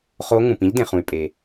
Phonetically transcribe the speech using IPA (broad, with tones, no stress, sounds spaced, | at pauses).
χ o˧˥ ŋ ũ˩ p ĩ˥ ʎ d ẽ˩ χ ũ˩ y̯ pʼ e˩